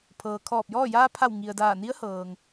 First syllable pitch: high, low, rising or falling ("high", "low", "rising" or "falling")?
low